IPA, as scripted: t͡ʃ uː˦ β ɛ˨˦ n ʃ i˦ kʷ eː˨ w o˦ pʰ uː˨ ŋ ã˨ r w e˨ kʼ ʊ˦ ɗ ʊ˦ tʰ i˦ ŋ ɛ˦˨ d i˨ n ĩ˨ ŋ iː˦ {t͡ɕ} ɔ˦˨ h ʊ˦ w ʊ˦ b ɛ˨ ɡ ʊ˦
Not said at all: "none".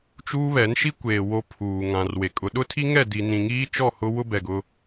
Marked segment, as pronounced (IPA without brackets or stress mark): t͡ʃ